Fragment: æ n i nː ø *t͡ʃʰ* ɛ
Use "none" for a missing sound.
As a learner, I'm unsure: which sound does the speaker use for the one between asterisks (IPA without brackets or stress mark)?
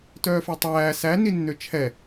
t͡ʃʰ